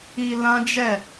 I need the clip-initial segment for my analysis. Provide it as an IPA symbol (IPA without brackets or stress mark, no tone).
i